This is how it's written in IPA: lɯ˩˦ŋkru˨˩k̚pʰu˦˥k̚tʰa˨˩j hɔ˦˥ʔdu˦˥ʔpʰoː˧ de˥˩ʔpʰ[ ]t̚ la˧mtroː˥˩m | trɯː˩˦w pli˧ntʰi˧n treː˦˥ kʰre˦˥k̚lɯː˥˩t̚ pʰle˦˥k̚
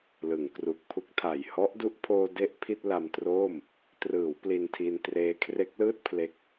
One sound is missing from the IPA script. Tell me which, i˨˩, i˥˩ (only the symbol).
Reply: i˥˩